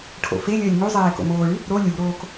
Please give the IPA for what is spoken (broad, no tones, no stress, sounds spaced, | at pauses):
ʈʰ o̰ f e lʲ əː lʲ ŋ u zˤ eː k o̰ m oː ɭ y | ɾ o lʲ u ɾ oː k